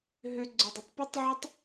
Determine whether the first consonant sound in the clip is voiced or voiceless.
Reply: voiced